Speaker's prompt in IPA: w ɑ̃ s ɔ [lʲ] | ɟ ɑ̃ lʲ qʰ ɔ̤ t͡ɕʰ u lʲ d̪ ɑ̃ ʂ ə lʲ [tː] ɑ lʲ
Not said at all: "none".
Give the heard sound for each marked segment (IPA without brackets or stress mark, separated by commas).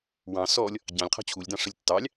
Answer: lʲ, tː